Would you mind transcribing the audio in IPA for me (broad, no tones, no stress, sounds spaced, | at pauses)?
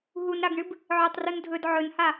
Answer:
ɦ u n ɾ a ɡ ɳ ɨ b | ʕ ɵ tˤ r u n dʱ ɵ d ʕ ɵ n h a